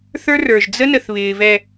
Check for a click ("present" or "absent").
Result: absent